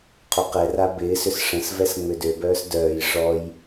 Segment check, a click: absent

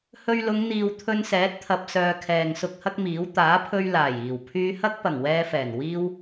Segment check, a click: absent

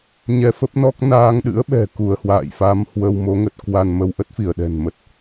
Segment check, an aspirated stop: absent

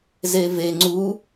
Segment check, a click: present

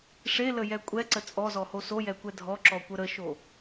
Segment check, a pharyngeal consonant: absent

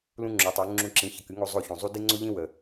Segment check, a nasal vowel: present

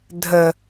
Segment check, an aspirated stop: absent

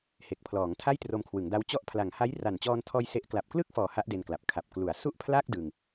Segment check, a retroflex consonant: absent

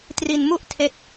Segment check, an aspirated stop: present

